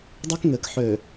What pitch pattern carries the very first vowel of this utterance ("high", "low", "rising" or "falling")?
high